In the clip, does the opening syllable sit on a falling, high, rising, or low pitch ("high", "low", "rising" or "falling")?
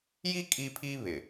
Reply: high